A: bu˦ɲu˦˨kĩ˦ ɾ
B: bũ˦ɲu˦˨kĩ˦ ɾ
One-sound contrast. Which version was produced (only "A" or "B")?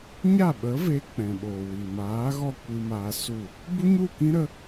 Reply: A